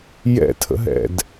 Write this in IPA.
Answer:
j ɛ̰ tʰ ə̰ ɦ ɛ̰ d

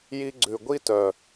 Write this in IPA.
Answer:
j i˧ ɡ͡ǀ ʉ˨ ɡʷ i˦ t œ˨

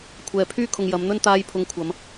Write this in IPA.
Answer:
kʷʰ ɛː˨ pʰ yː˥ kʰ ʊ˨ ŋ j ɐ˨˧ m n̪ ɵ˥ n t̪ aː˧ j pʰ ʊ˨˧ ŋ kʷʰ ɐ˨˧ m

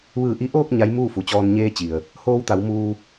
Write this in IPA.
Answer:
ʋ ɯː˧˩ ʔ i˧˥ ʔ oː˥˨ k̚ ɲ a˧˥ j m uː˥˨ f u˩ t͡ɕ ɔː˧ n ɲ eː˧ t͡ɕ i˩ ə̯ | h oː˧ w t̪ a˩˧ w m uː˧

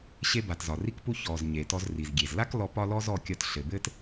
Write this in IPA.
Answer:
ɕ e˧ b a˩ t z ɒ˩ r i˧ k p u˧ ç ɔ˩ z ɲ e˩ t ɔ˧ z r i˩ z ɡʲ e˩ z l a˥ k l ɔ˧ p ɒ˥ l ɔ˥ z ɔ˧ kʲ ɒ˧ t ɬ ɘ˩ b ɘ˥ t

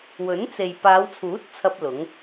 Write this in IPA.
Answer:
w ɵ˨˥ n t͡s e˨ j p aː˨˧ w t͡sʰ uː˨˥ t̚ t͡sʰ ɐ˥ p̚ l ʊ˨˥ ŋ

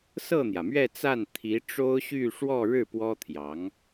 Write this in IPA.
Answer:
s ɤ˥˩ n̪ j ä˩ m ɥ ɛ˥˧ t͡s a˥˩ n t̪ʰ i˧˥ ʈ͡ʂ o˥ ʊ̯ ɕ y˥˧ ʂ w ɔ˥˧ ɻ ɻ̩˥˩ p w ɔ˥ t̪ʰ j ɑ˧˥ ŋ

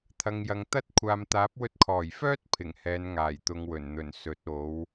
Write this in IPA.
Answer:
t̪ʰ ɐ˨ ŋ j ɐ˨ ŋ t̪ ɐ˥ t̚ kʷʰ aː˨ m t̪ aː˨˥ p̚ w ɵ˧ t̚ kʰ ɔː˨˩ j f œː˥ t̚ pʰ ɪ˨˩ ŋ h ɛː˨˧ n ŋ aː˨˩ j t̪ ʊ˨˧ ŋ w ɵ˨˩ n n̪ ɵ˨˩ n s ɵ˨˥ t̚ o˨˥ w

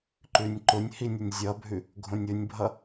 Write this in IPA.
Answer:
ǃ ʉ nʲ ǃ ʊ nʲ h i nʲ ʊ nʲ zʲ ʌ bʱ ʉ | ɡʱ õ nʲ ʊ nʲ bʱ ʌ

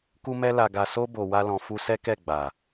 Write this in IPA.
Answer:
k u˧ m ɛ˧ l a˨ ɡ a˨ s o˧ b o˨ w a˧ l ɔ̃˨ f u˧ s ɛ˦ k ɛ˦˨ ɡ͡b a˨

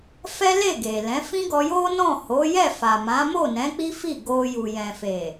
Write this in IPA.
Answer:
f ɛ˦ l e˦˨ ɡ e˨ l ɛ̃˨˦ f ĩ˦ ɡ ɔ˧ j o˦ n ɔ̃˦˨ h o˨˦ j ɛ˦˨ f a˨ m ã˨˦ m o˦˨ n ɛ̃˨˦ k͡p i˦ f i˦˨ ɡ o˧ j u˨ j ɛ̃˨ f e˨

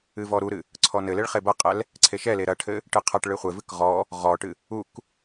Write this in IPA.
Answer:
ɨ v ɔ ɾ u ɾ ɨ | ǀʰ ɔ n ɘ l e ɭ χ e b ɐ qʼ ɛ l | ǀʰ e ʃ ɛ l e ɾ ɐ ʈʰ ɘ | ʈ ɨ qʰ ɐ ʈ ɭ ɨ χʷ e v ɨ k ʁ ɔ | ʁ ɔ ʈ ɨ | u k

